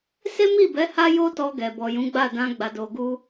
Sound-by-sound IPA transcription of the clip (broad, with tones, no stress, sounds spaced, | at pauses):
s e˦ m i˦˨ b ɛ˨˦ h a˦ j o˦ t ɔ˧ ɡ ɛ˨ b ɔ˨ j ũ˨˦ ɡ͡b a˦˨ d ã˧ ɡ͡b a˨ d o˨ ɡ u˧